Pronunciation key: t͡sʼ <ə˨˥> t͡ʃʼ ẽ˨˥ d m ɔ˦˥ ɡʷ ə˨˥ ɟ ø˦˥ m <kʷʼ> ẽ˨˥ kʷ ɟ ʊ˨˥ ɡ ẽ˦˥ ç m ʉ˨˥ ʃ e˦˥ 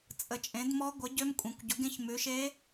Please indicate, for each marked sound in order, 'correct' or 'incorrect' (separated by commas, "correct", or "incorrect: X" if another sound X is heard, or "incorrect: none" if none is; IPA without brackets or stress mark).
correct, correct